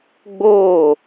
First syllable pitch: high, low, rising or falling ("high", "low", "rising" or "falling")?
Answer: falling